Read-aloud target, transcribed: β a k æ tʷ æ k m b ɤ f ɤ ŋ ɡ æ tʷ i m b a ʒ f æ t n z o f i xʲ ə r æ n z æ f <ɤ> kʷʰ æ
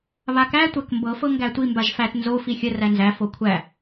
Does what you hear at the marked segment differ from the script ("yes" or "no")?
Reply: yes